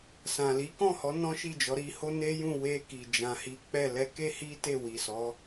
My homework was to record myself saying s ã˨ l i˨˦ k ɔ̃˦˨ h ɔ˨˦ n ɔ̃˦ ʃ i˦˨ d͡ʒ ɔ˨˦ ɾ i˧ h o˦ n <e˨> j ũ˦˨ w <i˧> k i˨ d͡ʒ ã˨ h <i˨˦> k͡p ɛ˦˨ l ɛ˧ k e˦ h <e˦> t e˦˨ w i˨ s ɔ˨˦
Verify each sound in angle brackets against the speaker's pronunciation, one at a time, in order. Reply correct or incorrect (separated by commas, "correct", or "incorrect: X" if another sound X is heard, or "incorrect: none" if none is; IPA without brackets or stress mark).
incorrect: e˦, incorrect: e˧, correct, incorrect: i˦